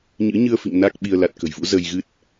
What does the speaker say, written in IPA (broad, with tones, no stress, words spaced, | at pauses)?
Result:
ɲɨ̰˧˥ɲɨ˧ə̯fḭ˧˨ŋ na˦˥k̚ɓi˧ə̯ la˨˩t̚kə̤˨˩jvṵ˧˥ zə˧jɣɨ˦˥t̚